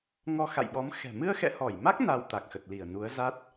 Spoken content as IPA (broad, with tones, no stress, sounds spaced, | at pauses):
ŋ ɔ˧ x a̰˧˨ j ɓ ɔ˨˦ m x ɛ̤˨˩ m ɨ˧ ə̯ x ɛ̰˧˨ h ɔ˧˩ j m a˦˥ k̚ n a˧ w t̪ a˨˩ k̚ x ə˨˩ t̚ l i˧˩ ə̯ n u˨˦ ə̯ z a˦˥ t̚